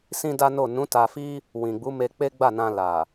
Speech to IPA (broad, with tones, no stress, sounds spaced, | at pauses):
s ĩ˦ d a˦ n o˦˨ n ũ˨˦ t a˧ f i˦ | w ĩ˨ ɡ͡b u˨˦ m e˧ k͡p e˦ ɡ͡b a˦˨ n ã˧ l a˨